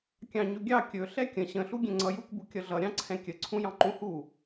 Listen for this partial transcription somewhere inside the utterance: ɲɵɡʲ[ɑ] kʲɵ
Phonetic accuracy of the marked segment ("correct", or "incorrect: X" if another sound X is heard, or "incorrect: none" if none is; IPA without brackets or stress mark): correct